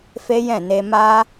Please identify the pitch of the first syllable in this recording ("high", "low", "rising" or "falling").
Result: high